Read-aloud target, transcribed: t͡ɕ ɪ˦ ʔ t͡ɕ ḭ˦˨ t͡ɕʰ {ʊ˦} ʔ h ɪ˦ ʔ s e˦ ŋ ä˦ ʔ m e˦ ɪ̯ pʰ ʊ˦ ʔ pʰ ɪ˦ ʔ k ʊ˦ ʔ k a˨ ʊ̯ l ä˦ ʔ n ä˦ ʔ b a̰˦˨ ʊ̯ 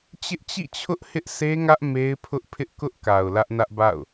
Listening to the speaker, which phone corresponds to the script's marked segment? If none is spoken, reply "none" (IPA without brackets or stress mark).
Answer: ʊ˦